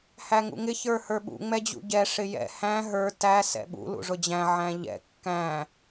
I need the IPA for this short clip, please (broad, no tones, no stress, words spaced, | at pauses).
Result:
hæŋṵŋɪ çə˞hə˞ɓṵ ŋ͡mɛd͡ʑṵɟɛ ʂɪjɛ̰ hæ̃ ɦə˞ tæ sɛ̰ɓṵ lṵʐʊd͡ʑæ̃ ʕæ̃ʎɛ̰ kːæ̃